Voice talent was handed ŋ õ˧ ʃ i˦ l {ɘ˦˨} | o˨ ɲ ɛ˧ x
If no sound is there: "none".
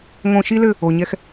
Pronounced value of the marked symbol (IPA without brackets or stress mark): ɘ˦˨